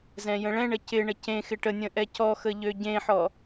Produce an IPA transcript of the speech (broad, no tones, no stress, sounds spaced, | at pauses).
z ɛ̃ j ə̃ ɭ ɛ̃ ɳ ə c ɪ ɳ ə c ẽ x ɪ ʈ ə nʲ ə̃ ʔ ɛ c ɔ x ə ʎ ø ɟ ẽ ħ ɔ